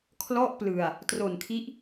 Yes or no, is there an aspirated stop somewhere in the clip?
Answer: yes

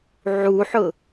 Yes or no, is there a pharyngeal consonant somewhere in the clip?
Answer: yes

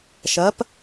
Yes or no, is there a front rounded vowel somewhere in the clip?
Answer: no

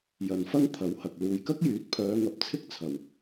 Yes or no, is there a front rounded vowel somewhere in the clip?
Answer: yes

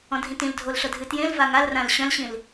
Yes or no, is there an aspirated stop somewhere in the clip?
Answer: no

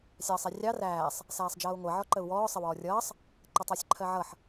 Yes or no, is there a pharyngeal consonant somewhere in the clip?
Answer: yes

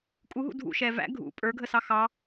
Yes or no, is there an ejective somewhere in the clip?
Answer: yes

